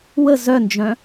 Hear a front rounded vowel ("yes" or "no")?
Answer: yes